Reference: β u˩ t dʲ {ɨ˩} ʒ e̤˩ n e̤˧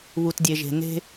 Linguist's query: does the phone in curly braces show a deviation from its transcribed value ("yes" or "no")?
yes